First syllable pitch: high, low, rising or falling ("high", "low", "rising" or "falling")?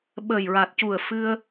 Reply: low